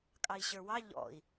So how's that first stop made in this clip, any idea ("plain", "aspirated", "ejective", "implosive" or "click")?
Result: ejective